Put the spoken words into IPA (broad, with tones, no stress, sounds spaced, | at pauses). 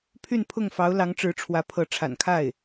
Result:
pʰ y˥˧ n pʰ ʊ˥˩ ŋ f ɑ˧˥ ʊ̯ l ɑ˧˥ ŋ ʈ͡ʂ ɻ̩˧˥ ʈ͡ʂʰ w ä˧˥ pʰ ɤ˧˥ ʈ͡ʂʰ a̰˨˩ n kʰ a˥˩ ɪ̯